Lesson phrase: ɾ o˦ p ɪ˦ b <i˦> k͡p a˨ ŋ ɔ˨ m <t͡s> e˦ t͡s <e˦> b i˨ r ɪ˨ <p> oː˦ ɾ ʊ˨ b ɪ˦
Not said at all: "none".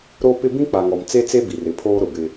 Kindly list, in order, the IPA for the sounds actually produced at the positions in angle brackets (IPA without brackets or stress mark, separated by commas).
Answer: ĩ˦, t͡s, e˦, pʰ